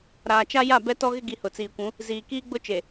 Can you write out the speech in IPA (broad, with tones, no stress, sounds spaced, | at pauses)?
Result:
ɾ aː˨ t͡ʃ a˦ j a˦˨ b ɛ˦ t ɔ˦ ɣ ɪ˦ ɡ i˨ h ʊ˨ t͡s iː˨ kʷ ũ˨˦ | z iː˨ k iː˦ ɡ͡b ʊ˦ t͡ʃ e˨